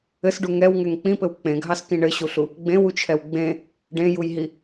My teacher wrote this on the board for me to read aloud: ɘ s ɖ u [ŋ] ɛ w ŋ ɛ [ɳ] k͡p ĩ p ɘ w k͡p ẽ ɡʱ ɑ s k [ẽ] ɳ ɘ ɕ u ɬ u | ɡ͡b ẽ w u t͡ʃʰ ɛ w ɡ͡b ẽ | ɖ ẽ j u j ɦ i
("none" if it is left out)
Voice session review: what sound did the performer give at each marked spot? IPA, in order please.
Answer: ŋ, ŋ, ĩ

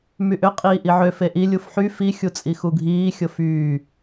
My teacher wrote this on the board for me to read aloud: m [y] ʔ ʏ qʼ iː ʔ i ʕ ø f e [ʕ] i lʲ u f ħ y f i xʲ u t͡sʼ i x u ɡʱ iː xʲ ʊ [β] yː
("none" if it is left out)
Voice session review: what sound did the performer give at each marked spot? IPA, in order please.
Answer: y, ʔ, f

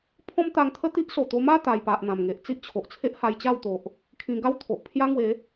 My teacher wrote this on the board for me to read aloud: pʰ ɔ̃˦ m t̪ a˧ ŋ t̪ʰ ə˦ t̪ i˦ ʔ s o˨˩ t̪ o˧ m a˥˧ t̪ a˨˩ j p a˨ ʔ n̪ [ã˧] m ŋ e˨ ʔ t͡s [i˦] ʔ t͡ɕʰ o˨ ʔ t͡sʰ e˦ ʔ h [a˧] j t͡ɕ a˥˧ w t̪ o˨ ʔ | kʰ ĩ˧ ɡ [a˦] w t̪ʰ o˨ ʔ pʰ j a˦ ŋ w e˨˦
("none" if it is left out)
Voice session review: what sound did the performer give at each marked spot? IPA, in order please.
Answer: ã˨˩, i˦, a˧, a˦

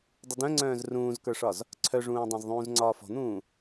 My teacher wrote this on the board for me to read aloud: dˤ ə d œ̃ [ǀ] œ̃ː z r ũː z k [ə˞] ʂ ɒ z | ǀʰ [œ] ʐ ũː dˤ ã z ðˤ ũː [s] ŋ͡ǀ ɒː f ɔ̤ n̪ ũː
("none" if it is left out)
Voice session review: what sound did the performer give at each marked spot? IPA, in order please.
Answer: ŋ͡ǀ, ə˞, œ, z

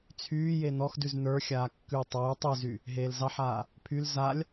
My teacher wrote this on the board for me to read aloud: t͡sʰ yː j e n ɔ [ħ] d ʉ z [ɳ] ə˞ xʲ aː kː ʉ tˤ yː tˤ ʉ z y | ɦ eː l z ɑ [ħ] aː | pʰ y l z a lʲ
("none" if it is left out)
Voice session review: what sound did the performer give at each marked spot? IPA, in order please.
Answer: x, n, ħ

